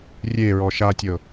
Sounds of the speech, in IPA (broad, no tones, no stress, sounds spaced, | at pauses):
rʲ e ɹ ɔ ʃ a tʲ ɤ